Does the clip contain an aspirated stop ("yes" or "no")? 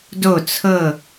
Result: yes